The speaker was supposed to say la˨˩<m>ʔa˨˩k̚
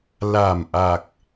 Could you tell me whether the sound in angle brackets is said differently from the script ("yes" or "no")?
no